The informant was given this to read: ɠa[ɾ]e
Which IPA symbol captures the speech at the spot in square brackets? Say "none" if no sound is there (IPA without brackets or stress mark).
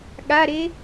ɾ